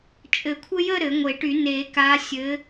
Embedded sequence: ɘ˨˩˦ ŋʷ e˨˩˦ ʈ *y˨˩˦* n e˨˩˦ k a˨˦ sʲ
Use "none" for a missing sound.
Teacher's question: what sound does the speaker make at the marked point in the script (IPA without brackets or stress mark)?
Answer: y˨˩˦